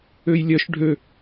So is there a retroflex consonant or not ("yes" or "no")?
yes